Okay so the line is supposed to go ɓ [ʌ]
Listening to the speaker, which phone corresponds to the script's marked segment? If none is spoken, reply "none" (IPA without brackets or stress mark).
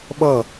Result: ʌ